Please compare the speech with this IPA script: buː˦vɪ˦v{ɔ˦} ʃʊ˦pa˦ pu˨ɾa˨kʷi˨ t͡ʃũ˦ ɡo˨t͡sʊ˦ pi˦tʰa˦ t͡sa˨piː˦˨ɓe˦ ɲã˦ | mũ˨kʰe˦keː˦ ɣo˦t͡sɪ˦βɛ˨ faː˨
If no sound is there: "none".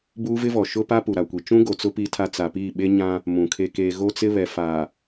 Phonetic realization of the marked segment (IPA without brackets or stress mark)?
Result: ɔ˨